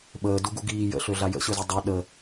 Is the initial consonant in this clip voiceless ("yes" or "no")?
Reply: no